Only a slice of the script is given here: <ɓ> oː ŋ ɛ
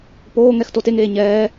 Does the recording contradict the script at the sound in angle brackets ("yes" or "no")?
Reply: yes